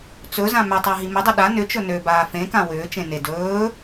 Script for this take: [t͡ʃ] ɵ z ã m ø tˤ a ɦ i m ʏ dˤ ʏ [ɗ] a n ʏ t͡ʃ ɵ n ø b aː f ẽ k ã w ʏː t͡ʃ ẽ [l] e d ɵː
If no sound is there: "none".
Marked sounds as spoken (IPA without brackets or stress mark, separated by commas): t͡s, ɗ, n